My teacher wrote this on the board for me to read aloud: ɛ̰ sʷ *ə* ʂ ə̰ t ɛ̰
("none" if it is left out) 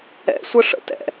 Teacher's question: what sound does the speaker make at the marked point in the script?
ə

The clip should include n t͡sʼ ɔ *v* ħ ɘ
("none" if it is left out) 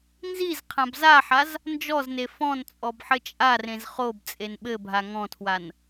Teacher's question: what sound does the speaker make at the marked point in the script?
b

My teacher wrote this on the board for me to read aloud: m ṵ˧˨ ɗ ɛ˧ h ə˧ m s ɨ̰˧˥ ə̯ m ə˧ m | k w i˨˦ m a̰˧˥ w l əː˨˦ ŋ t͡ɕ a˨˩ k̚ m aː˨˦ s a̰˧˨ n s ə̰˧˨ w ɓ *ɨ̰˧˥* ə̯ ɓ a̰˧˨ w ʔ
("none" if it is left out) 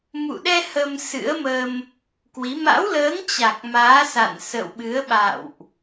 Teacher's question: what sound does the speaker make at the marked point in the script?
ɨ˨˦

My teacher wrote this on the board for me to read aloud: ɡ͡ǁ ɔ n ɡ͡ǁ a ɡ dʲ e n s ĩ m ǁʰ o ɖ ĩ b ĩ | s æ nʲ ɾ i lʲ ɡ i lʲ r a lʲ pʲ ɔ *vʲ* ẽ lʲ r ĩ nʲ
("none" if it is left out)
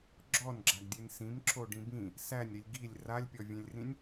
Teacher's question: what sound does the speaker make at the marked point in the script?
vʲ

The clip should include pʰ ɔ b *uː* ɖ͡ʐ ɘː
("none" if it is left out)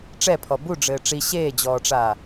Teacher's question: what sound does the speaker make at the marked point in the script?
u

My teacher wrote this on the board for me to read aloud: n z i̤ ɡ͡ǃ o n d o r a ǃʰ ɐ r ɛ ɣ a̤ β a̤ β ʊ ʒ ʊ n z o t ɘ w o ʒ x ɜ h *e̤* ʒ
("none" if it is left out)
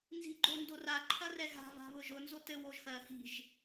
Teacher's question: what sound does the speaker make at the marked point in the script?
i̤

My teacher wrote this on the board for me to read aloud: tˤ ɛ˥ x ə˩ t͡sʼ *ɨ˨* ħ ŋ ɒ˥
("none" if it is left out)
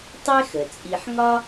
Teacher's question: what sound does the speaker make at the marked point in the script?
i˨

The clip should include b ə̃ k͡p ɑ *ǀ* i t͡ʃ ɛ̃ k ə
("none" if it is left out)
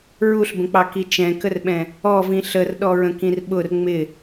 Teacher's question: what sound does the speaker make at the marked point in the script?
k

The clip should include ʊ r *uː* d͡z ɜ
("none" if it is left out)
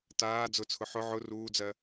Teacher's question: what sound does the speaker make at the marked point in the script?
uː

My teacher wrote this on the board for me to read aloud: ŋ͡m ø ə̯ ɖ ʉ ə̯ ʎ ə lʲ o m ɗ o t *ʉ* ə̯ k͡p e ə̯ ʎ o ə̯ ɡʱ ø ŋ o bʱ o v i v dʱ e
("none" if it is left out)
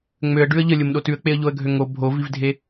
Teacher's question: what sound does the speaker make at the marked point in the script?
ʉ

